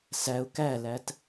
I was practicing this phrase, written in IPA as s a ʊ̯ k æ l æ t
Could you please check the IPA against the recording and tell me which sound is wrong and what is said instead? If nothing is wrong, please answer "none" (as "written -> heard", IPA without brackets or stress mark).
a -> æ